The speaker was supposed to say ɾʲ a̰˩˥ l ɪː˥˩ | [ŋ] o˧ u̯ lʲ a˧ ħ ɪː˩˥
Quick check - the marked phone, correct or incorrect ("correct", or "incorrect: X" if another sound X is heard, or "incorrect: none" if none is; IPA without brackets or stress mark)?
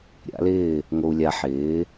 correct